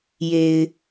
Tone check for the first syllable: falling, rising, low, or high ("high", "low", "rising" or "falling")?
low